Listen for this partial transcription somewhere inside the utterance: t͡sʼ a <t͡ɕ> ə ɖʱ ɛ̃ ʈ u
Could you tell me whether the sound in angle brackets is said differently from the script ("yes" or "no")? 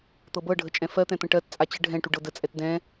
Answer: no